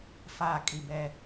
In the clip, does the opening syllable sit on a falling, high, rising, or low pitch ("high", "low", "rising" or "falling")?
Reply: falling